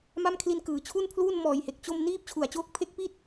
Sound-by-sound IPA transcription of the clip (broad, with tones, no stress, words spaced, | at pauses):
ma˥˩mkʰli˦˥nkɯː˩˦ t͡ɕʰu˥˩npʰluː˥˩nmɔː˨˩jhe˨˩k̚ t͡ɕo˥˩m niː˥˩p̚ t͡ɕʰu˨˩a̯t͡ɕoː˦˥k̚pʰe˦˥k̚pi˥˩t̚